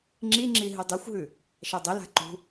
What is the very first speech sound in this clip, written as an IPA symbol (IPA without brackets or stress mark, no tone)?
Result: ŋ͡ǁ